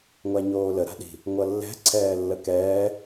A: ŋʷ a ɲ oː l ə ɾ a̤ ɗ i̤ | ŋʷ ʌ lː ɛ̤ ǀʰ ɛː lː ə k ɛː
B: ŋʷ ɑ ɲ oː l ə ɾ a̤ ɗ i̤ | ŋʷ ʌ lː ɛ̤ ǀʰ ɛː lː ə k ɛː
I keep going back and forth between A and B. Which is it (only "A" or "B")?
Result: A